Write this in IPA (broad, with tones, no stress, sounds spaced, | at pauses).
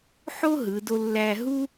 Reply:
ħ o˥ ɦ ɯ˩˧ d o˧ lː æ˧ ɦ u˥